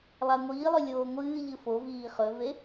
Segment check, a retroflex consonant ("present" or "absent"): absent